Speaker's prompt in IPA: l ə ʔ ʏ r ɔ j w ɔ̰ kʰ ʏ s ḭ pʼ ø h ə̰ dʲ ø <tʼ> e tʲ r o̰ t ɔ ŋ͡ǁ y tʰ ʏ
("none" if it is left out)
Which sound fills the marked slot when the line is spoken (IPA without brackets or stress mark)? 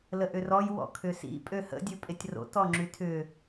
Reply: pʼ